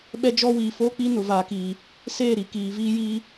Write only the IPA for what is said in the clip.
ɓ ɛ˦ d͡ʒ ɔ˦ w iː˨ f oː˦ k͡p i˦ n ʊ˨ v aː˨ k iː˨ | s eː˦˨ ɾ i˨ k iː˨ v iː˦ j iː˦

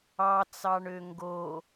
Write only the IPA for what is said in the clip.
ɑ t͡s ɑ ɳ ø ŋ ɡ o

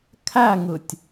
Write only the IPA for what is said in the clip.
kʰ æ ŋ ɯ tʲ

